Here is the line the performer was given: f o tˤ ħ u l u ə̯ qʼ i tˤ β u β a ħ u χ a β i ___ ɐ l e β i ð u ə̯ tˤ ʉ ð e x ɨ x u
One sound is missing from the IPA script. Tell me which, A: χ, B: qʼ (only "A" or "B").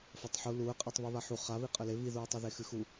B